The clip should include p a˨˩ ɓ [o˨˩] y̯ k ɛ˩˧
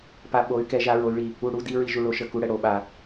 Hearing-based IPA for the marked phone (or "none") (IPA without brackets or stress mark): o˩˧